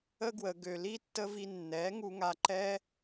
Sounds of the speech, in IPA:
ə˦ ɡ w ə˨ ɡ ø˨ l i˦ tː ə˦ v i˧ nː ɛ˨˦ ŋ u˧ ŋ a˧ ǃ ɛ˦

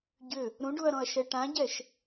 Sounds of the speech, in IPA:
ɟ ʏ | ɾ ũ ɖ u ɐ̯ ɾ ɔ̃ ɐ̯ ʃ ɛ ʈ ã ɟ ɛ ʃ

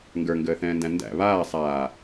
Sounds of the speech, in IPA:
ŋ ɡ ə˞ ŋ ɡ əː θ ɛ̃ː n d æ̃ n d æ̰ β aː sˤ aː

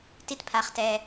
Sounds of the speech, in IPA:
t i˥ t pʰ a˧ χ t ɛ˧

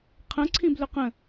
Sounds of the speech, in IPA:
qʰ ə̃ ǀʰ ĩ b l ø q ə̃

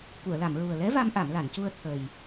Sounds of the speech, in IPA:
k u˨˩˨ ə̯ l a˨˩˨ m ɹ u˨˩ ə̯ l ɛ˧˥ v a˧ m ʔ a˨˩˨ m l a˨˩˨ n c u˧ ə̯ t̪ʰ ə˨˩ j

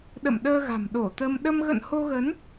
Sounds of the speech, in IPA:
ɗ ə̰˧˨ m ɗ əː˧ ɣ a̤˨˩ m ɗ o˧˩ t̪ ə˧ m ɗ ə˧ m ɣ ə̰˧˨ n h o˧ ɣ ə˨˦ n

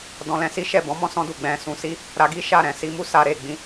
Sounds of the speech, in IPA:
d ɔ̃˧ l ɛ̃˧ s i˦ ʃ ɛ˦˨ b ɔ̃˨˦ m ɔ̃˧ s ɔ̃˧ d u˨ ɡ͡b ɛ̃˧ s ũ˧ s i˦ | ɾ a˧ ɡ i˦ ʃ a˦˨ ɾ ɛ̃˨ s i˧ m u˦ s a˧ ɾ e˨ ɡ͡b ĩ˨˦

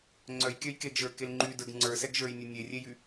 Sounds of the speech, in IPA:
ŋ͡ǀ œ j kʲ œ j k e ɡ ʒ ə˞ k e l ŋ͡ǃ y d ə˞ ɡ ŋ͡ǀ ə˞ s ɛ ɡ ʒ ə˞ j nʲ e nʲ e rʲ e j y

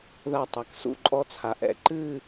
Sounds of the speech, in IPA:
ð a˧˩ tˤ a˩˧ k s ṵ˧˩ ǃʼ ɔ˧ t͡sʰ a˩˧ ʔ ɛ̰˧˩ ǃ ɨ˥˧

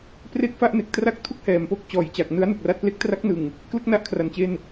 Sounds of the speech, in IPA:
p r e˥˩ k̚ f a˥˩ ʔ n e˨˩ k̚ t r a˥˩ k̚ tʰ u˥˩ k̚ h ɛː˨˩ m p o˥˩ k̚ t͡ɕ ɔː˨˩ j t͡ɕ a˨˩ k̚ n ɯ˦˥ a̯ n u˨˩ k̚ r a˦˥ t̚ p l e˦˥ k̚ t r a˦˥ k̚ n ɯ˨˩ ŋ | k l ɯ˦˥ k̚ n a˦˥ ʔ kʰ r a˨˩ n t͡ɕ e˧ n

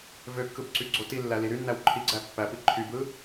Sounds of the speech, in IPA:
v ø kː ɯ b ǀ y ɡ͡ǀ o t i lː æ l i ɾ y nː æ w ǃʰ i ɡ͡ǀ æ pː æ p i ǃʰ y b ɯ

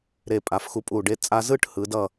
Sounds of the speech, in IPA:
ɾ e˧˩ pʼ a˩˧ f x u˧ pʼ u˧˩ ɖ e˧ t͡sʼ a˧ z ɯ˥˧ ʈ h ɯ˩˧ d ʌ˧˩

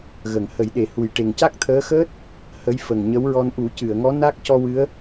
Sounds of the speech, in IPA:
ɣ ə˨˩˨ ŋ h ə˨˩˦ j ɗ e˨˩ h u˨˩ j ʈ e˨˩ ŋ c a˦˥ k̚ t̪ʰ əː˧˥ x əː˦˥ t̚ | h ə˧˥ j f ə˨˩ ŋ ɲ ə˧˥ w ɹ ɔ˧ n ʔ u˨˩˦ c ɨ˨˩˨ ə̯ ŋ ɔ˧˥ n a˦˥ k̚ c ɔ˧ w ɨ˧˥ ə̯

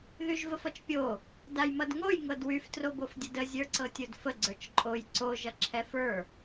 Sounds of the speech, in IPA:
ð y ʒ v ə f ʌ t͡ʃ pʲ o | d a j m ʌ d ŋ o j ŋ ɤ d w y f t r o b o f dʲ ə d ə zʲ ə˞ ǀ ɤ tʲ o d f ə ɡ͡ǀ ə˞ t͡ʃ ǃʼ o j ǀ o ʒ ʌ ǁʰ ɛ f ə˞

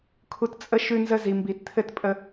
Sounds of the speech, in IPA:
kʰ u˦ t t͡sʼ ə˦ ʃ ʉ˦ n z ə˦ z i˨ m b i˨˩˦ t t̪ʰ ɘ˥˨ t pʼ ə˦

